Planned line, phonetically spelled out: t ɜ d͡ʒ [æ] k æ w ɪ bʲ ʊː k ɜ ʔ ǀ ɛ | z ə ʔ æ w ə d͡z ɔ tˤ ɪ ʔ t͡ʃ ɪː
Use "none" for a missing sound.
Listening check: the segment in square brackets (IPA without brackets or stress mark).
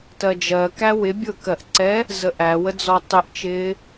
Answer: ɜ